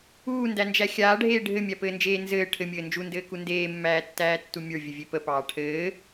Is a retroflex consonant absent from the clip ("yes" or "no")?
no